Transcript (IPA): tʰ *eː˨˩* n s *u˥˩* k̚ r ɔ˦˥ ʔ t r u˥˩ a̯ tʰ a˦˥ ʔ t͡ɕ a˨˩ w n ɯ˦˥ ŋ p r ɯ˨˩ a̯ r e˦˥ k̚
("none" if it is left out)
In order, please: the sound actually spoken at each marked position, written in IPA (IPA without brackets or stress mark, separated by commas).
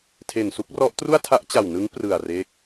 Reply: e˨˩, u˥˩